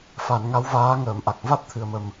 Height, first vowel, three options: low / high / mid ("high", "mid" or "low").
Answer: low